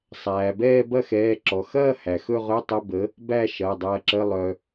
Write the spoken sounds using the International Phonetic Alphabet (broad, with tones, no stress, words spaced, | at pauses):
sˤæː˩bɛː˥˧ bɐ˥˧xɛː˩˧˩ǁɔ˩ xɐː˥˧hæ˩ xɵ˥˧ʁɵ˧˥˧tˤə˧˥˧ bə˨˥ | bæ˥˧ʃɐ˩˧˩dˤɐː˧ǁə˧˥˧ lˠœ˧